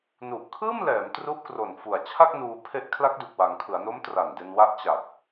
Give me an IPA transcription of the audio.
n u˨˩ ʔ kʰ ɯː˥˩ m l ɛː˩˦ m t r u˦˥ ʔ k r o˨˩ n f u˨˩ a̯ t͡ɕʰ a˥˩ k̚ n uː˧ pʰ e˦˥ ʔ kʰ l a˦˥ k̚ d u˨˩ k̚ w a˩˦ ŋ kʰ ɯ˩˦ a̯ n o˦˥ m t r a˨˩ n d e˧ n w a˦˥ ʔ t͡ɕ a˨˩ k̚

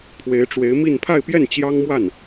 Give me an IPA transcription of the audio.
pʰ w e˧˥ ɪ̯ ʈ͡ʂ w e˧˥ ɪ̯ m i˥˧ n pʰ a˥˧ ɪ̯ p j ɛ˥˩ n t͡ɕ j ɑ˥ ŋ m w a˥˩ n

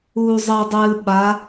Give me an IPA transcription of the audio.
uː zˤ ɛ dˤ ɨː ɓ a

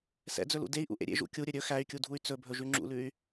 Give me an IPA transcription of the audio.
s ɛ̰ d͡z ɵ l ṵ d e i̯ ʔ ṵ ʔ ḛ ɾʲ ḛ ʒ ṵ kʲ u ɾʲ ɵ ɾʲ ɵ x æ y̯ kʲ u dʱ u y̯ t͡s ɵ bʱ ɵ ʒ ʉ ŋ͡ǁ ṵ l ʉ y̯

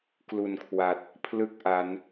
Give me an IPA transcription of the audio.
k l u˨˩ n kʰ w a˨˩ t̚ | pʰ l ɯ˥˩ k̚ ʔ a˦˥ n

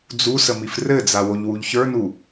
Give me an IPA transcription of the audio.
d͡z u s ə m i f r ɘ d͡z a w o ʎ w u ʎ ç ə˞ n u

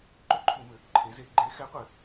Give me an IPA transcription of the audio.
ǃ ʏ˦ ǃʰ u˧˩˧ m ʏ˩˧ | ǃʰ e˩˧ z e˧˩˧ ɡ͡ǃ e˨˥ x ɛ˨˥ qʷ ɘ˧˩˧

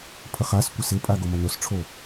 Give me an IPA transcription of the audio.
pʰ ə χ a s kʷ ɐ s ɪ pʼ a ɡ o m ɐ n o s ʈ͡ʂʰ o

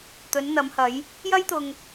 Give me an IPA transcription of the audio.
t̪ ɵ˨˧ n n̪ ɐ˨˧ m h ɐ˨˧ j | j ɐ˥ j t̪ ʊ˧ ŋ

